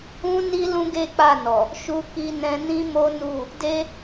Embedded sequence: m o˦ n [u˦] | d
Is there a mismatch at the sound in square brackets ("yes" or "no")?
yes